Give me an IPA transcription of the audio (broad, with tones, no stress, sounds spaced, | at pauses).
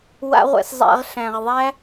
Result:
w a̰˦ ʁʷ ɛ̰˧ s zˤ æ̰˧ ʁ ɬ æ̃˨ ʁ ðˤ æ˦